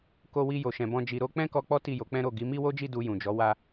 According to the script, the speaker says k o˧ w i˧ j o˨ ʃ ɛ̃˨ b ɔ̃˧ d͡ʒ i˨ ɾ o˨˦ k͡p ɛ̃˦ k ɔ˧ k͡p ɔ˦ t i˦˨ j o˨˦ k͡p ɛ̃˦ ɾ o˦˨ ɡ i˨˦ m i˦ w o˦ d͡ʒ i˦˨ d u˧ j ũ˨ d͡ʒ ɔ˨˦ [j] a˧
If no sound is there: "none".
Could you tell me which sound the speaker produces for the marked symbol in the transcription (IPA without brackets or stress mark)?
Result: w